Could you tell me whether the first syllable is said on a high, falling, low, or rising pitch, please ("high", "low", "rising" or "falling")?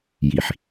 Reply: low